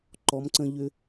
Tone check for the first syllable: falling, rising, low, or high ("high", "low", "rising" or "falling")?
rising